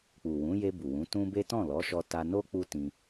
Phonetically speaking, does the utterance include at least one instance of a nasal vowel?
yes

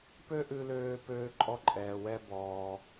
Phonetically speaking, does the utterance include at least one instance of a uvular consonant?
no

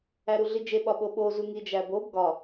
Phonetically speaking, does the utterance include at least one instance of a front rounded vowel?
no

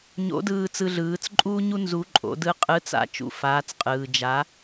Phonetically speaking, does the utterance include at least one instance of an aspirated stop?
no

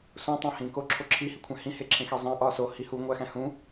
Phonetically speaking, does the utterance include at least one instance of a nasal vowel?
yes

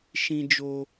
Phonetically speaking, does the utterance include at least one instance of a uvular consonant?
no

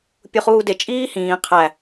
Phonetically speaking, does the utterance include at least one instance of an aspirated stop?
yes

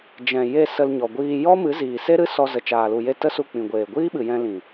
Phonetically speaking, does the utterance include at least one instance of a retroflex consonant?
no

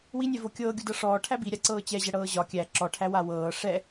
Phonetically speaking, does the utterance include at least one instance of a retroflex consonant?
yes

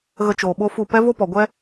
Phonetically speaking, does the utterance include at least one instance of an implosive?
yes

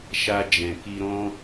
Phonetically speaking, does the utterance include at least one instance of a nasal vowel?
yes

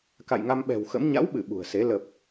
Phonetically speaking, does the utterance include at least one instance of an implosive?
yes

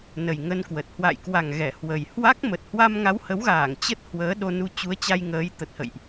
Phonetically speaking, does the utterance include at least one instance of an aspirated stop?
no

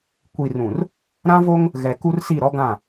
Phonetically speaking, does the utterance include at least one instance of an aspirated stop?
no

